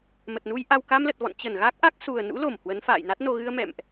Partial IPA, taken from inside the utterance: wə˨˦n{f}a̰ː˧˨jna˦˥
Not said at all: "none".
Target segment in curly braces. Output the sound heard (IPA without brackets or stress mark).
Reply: f